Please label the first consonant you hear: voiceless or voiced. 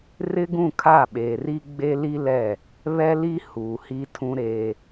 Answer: voiced